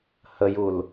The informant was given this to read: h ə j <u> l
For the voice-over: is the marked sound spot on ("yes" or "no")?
yes